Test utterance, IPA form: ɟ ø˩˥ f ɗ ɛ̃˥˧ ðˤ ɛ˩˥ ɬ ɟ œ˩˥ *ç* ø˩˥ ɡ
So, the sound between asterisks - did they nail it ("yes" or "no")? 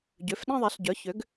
yes